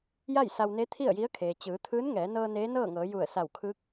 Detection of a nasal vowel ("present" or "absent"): absent